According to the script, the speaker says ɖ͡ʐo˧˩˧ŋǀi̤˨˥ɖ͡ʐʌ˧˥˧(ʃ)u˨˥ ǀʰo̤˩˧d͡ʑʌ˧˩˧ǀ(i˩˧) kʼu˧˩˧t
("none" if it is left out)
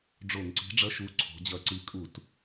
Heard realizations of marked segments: ʃ, i˨˥

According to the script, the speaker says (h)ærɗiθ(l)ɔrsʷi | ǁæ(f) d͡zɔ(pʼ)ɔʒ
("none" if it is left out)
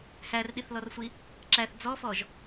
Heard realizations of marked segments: h, l, θ, f

